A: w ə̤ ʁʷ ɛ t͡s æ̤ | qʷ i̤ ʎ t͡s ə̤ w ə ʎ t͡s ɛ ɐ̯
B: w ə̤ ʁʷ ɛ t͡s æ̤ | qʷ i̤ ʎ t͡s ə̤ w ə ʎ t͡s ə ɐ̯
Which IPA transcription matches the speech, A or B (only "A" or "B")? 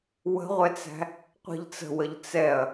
A